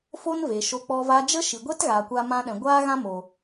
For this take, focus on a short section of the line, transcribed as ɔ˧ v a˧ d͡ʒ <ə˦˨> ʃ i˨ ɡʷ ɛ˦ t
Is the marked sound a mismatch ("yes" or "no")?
yes